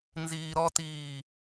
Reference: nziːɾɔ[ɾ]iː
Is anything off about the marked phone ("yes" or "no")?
yes